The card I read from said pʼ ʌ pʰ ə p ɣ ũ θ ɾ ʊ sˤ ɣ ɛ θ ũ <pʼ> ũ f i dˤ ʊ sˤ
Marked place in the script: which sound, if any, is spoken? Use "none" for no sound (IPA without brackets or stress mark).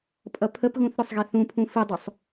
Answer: pʰ